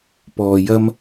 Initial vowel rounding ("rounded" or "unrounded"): rounded